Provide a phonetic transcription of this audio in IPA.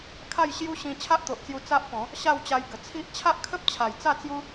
kʰ a˥˧ j ɕ j u˦ ɕ ĩ˧ t͡ɕʰ a˦ ʔ t̪ o˨ ʔ t͡s j u˧ t͡s a˦ ʔ p ɔ̃˨˦ | ɕ a˥˧ w t͡ɕ a˧ j ɡ ə˨˩ t͡sʰ i˦ ʔ t͡ɕʰ a˦ ʔ kʰ ə˦ p̚ t͡ɕʰ a˨˩ j t͡s a˥˧ t͡s j u˦

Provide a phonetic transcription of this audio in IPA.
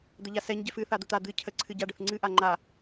d̪ ə ʎ a s ɛ ɲ ɟ ɛ f ɨ θ a d̪ ə t̪ a d̪ ɨ cʰ ə ǀʰ ɨ ɟ a ɖ ə θ ŋ͡ǀ ɨ ʔ a ŋ͡ǃ a

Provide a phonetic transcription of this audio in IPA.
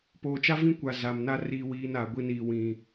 p oː˨ t͡ʃ a˦ v ĩ˦ kʷ a˨ z a˨ m n a˦ r iː˦ w iː˦ n a˨ ɡʷ i˦ n iː˨ w ĩ˨

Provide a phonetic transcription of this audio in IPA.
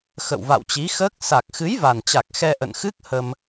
x ə̰˧˨ w v a̰˧˨ w t͡ɕ i˨˦ x əː˦˥ k̚ s a˨˩ k̚ x ɨ˨˦ j v a˨˩ n t͡ɕ a˨˩ k̚ x ɛ˧ ʔ ə̰˧˨ n x ɨ˦˥ k̚ h ə˧ m

